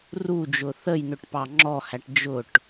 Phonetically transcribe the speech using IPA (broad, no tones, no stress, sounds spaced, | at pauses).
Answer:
r u d͡ʒ ʊ θ ə j n ʊ ʈ p ɑ ŋ͡ǁ ɔ h æ ʈ d͡ʒ ʊ ʈ